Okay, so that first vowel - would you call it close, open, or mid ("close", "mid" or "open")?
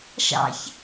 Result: open